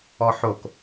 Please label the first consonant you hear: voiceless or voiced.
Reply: voiceless